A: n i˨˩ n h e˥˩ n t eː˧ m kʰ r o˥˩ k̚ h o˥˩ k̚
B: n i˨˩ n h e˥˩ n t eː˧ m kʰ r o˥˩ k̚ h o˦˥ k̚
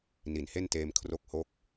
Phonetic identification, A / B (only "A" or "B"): A